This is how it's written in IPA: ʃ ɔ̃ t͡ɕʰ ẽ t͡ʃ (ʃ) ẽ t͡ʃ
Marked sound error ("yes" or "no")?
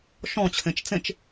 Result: yes